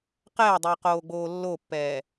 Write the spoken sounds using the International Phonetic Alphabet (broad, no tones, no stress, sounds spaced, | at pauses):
q ɛː dˤ i q oː ɡ͡b oː lː o pː ɛː